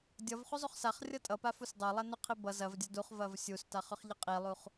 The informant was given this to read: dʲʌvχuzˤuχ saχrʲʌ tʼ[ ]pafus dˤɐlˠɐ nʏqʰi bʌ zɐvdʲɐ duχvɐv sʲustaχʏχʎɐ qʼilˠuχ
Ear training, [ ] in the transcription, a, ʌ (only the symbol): ʌ